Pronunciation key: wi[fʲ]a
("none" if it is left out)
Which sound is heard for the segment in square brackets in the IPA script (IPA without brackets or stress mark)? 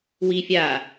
fʲ